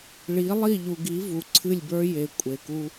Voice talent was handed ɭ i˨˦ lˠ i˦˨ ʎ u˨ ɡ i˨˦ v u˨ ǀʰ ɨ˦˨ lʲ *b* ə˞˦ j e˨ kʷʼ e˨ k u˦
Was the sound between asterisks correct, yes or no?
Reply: yes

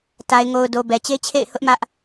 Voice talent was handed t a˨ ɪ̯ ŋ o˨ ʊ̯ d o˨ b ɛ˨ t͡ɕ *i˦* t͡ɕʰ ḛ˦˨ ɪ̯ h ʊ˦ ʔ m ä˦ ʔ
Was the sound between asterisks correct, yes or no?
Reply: no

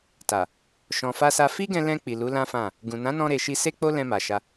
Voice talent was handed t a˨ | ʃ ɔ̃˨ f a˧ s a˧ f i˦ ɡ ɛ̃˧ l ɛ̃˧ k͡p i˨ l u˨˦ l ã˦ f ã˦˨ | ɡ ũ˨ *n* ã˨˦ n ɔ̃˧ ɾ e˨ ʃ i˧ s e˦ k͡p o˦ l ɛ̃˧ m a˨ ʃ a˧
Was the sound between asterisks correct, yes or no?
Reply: yes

